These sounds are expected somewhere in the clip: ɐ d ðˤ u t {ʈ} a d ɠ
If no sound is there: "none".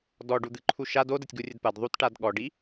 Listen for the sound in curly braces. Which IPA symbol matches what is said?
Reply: ʈ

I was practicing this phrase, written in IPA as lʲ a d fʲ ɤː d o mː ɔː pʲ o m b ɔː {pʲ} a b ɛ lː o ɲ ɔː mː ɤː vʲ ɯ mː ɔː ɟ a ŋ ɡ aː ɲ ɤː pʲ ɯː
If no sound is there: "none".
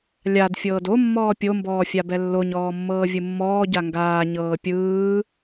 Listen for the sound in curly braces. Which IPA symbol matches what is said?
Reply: fʲ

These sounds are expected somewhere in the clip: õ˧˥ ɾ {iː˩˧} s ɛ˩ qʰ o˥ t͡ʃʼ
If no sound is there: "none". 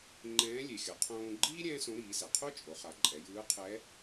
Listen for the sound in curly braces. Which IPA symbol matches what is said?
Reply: iː˩˧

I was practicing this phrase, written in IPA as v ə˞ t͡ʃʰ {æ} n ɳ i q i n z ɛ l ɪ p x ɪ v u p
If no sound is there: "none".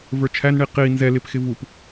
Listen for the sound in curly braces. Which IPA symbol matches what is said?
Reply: æ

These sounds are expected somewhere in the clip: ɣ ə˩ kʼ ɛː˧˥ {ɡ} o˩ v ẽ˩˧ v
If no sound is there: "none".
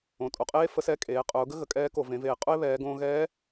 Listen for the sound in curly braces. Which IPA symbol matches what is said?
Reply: k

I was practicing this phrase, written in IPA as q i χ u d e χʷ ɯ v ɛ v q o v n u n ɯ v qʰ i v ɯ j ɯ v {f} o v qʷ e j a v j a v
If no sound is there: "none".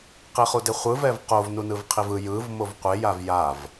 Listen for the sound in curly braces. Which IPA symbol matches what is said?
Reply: m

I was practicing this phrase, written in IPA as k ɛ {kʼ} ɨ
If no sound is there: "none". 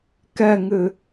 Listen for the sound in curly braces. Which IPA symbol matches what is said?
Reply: ŋ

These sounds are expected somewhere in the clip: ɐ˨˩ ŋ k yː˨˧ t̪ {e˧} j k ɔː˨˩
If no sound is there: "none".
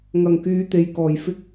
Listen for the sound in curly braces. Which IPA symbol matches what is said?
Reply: e˨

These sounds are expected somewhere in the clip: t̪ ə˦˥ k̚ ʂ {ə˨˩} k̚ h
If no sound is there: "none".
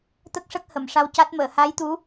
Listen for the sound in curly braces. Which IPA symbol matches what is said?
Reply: ə˦˥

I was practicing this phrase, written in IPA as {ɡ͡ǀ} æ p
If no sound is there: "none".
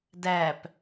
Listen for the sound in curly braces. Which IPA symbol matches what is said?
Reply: d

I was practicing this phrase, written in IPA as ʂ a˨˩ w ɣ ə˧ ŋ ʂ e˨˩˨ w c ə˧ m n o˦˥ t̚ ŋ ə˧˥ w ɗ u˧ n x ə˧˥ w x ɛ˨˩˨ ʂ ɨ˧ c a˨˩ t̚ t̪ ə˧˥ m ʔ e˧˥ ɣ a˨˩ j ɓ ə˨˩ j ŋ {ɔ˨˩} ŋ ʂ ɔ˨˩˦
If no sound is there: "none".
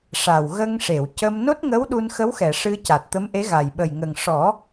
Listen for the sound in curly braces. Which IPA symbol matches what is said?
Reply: ə˨˩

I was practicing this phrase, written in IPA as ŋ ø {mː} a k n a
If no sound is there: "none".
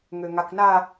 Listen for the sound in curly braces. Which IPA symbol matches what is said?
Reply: ŋ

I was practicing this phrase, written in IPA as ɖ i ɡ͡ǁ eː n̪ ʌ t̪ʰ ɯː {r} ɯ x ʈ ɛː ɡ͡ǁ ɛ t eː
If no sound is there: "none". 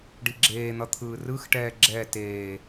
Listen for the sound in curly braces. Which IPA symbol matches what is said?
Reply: r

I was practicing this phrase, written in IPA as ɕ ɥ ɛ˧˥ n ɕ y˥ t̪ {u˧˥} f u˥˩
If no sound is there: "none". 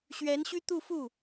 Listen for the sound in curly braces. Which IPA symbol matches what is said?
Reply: u˥˧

